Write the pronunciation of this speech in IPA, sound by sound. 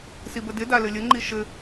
sibədɪ dalɘlʲə ŋ͡ǃiʃɘ

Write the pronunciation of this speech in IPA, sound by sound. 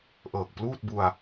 ʔɤː˨˩k̚pluː˥˩t̚bu˧a̯

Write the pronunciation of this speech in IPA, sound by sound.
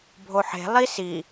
bʱoħe̤ lˠisi

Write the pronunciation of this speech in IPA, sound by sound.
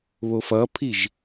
βofʌpʰiʒ

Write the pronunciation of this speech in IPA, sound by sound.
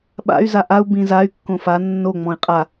ɓa̰y̯ zaʔau̯ bĩzay̯ kːõfa nːo ŋ͡mɔ̃i̯qʼa

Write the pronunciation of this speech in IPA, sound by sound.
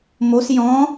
mos jɔ̃

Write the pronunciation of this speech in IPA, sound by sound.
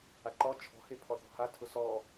aǃɔ t͡ʃʰɔ̤ hepʰɔθɔ̤ha tʰʊsɔ

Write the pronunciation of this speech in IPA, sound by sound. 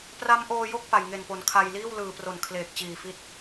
pra˦˥mʔoː˧jo˥˩k̚ pa˨˩jŋe˨˩npo˩˦n kʰa˧jliː˥˩w lɯː˨˩pro˨˩n kʰleː˨˩k̚t͡ɕiː˨˩fi˦˥t̚

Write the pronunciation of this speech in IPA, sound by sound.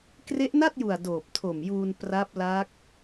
kre˦˥ʔna˥˩t̚ju˨˩a̯ doː˨˩p̚tʰo˨˩mjuː˧n pra˦˥p̚la˦˥k̚

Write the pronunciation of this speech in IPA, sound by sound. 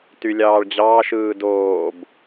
tylʲɑːɭd͡ʑɑːʃɯː doːb

